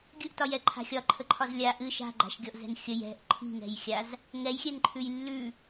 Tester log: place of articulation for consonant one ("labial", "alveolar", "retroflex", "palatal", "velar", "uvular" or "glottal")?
velar